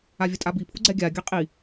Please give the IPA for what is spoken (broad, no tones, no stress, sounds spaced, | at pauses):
a vʲ ə tʼ a b i pʰ u ɡ͡ǀ ɛ ɡʲ a ɡʲ a qʼ i